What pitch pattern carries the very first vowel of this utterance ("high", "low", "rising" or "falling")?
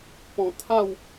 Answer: low